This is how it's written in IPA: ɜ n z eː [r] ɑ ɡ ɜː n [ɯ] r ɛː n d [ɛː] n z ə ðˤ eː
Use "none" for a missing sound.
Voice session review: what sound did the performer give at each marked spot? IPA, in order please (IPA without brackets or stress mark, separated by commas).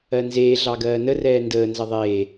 ɮ, ə, əː